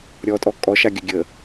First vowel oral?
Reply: yes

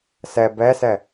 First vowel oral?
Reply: yes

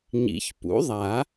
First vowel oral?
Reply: yes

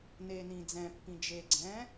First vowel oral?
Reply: yes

